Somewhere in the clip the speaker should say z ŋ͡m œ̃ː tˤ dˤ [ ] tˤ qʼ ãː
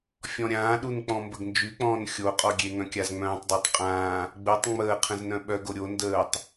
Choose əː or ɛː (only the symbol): əː